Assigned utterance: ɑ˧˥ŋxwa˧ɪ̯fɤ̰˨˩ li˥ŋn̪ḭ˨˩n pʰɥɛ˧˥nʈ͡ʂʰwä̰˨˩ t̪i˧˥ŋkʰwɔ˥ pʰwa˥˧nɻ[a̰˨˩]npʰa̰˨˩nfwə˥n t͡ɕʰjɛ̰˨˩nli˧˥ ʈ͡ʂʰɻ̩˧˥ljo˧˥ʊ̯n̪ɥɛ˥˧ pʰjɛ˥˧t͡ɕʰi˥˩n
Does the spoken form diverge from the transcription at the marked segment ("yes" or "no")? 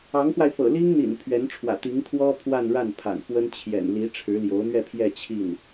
yes